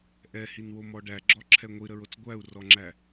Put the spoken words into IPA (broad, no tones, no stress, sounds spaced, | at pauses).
ʔ ɛ h i n w o m ɔ ɖ æ ɡ͡ǁ ɔ ǁʰ ɛ ŋʷ i ɾ ə ɹ o t͡s ɡʷ æ u̯ r ɔ ŋ͡ǁ æ